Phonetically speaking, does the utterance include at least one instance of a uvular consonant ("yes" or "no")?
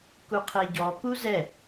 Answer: yes